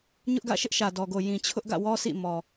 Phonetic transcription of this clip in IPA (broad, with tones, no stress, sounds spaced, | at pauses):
ɲ ʊ˦ ʔ ɡ ä̰˦˨ ʃ ɪ˦ ʔ ʃ ä˨ d ɔ˨ ɡ o˨ j ĩ˨ t͡ɕʰ ʊ˦ ʔ ɡ ä̰˦˨ w ɔ˦ s ḭ˦˨ m ɔ˨